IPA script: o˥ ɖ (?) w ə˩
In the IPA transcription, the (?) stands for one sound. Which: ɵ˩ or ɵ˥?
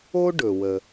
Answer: ɵ˩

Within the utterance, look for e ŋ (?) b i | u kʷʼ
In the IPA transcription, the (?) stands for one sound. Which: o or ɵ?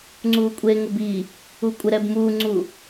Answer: o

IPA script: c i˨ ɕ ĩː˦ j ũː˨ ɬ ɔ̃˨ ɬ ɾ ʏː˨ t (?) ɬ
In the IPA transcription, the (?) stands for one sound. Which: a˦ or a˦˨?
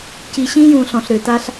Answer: a˦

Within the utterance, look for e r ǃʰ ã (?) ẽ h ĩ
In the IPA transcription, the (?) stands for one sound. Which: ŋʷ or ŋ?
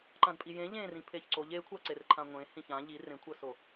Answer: ŋʷ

